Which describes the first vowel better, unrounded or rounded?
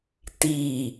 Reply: unrounded